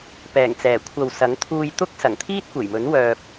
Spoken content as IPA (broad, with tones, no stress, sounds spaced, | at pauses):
p ɛː˨˩ ŋ t͡s ɛː˨˩ kʷʰ ɐ˨ w s ɐ˨˥ ŋ t̪ʰ uː˧ j t̪ ʊ˥ k̚ s ɐ˨˩ ŋ t̪ʰ iː˥ t̚ kʷ e˨˩ j m ɵ˨˥ n w œː˧ p̚